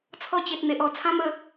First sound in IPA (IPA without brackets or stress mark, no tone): t͡sʰ